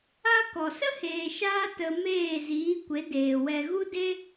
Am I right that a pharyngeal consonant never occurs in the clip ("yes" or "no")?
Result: yes